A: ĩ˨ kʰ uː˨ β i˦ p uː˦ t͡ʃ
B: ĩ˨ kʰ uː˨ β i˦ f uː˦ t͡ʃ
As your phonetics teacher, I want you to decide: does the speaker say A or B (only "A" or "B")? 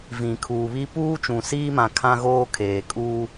A